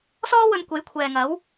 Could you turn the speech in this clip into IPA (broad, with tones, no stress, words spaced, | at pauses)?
sɔː˥wɵ˧nkʷe˨˥j kʷʰɛː˨ŋɐ˨˥w